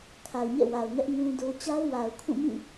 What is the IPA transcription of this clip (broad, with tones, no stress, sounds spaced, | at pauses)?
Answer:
kʰ a˨ ʊ̯ ɲ ɛ̰˦˨ w a˨ ʊ̯ ŋ ɛ˦ ʔ ŋ ũ˦ d o˦ t͡ɕ a˦ ʊ̯ w a˨ ʊ̯ kʰ ũ˦˨ m ĩ˦˨